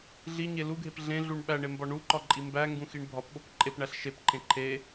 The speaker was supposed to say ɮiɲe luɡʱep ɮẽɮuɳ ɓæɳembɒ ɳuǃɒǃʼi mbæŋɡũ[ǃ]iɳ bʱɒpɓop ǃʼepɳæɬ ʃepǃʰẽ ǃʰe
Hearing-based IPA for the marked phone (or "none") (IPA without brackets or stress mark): x